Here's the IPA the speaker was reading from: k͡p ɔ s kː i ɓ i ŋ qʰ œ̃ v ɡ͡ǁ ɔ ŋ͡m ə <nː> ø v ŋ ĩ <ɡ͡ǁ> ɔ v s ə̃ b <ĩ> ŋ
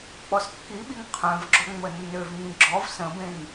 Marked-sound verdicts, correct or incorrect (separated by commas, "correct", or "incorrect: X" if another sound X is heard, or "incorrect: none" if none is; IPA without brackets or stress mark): correct, correct, incorrect: ẽ